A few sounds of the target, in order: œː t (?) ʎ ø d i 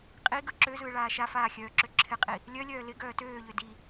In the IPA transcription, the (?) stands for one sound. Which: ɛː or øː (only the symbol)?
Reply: øː